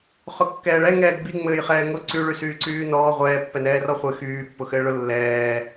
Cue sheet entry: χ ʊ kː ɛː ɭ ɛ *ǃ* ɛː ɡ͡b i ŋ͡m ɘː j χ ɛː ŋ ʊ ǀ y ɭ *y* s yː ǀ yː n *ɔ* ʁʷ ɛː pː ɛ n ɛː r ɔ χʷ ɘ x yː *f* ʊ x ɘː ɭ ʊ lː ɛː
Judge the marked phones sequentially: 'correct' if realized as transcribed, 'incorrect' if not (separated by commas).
incorrect, correct, incorrect, incorrect